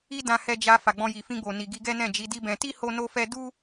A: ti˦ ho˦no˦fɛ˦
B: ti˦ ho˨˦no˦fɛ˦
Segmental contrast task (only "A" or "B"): A